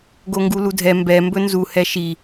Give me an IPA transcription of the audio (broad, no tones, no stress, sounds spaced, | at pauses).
ɡ o ŋ ɡ u l u dʱ ɛ m b ɛ m b ɵ n z u h ɛ ʃ i